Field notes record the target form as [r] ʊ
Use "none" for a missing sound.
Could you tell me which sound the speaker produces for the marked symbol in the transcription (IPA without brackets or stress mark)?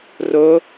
r